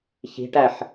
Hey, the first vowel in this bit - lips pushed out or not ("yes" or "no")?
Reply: no